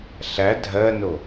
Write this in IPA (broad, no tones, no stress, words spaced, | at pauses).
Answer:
ɬæ dʱɜno